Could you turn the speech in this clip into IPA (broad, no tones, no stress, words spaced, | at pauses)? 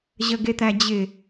ʑəɡet̪æd͡ʑɪ